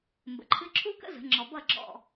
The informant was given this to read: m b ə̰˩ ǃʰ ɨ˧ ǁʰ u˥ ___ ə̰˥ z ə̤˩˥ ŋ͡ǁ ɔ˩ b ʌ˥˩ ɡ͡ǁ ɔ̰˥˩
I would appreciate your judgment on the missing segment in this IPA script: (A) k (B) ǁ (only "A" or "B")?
A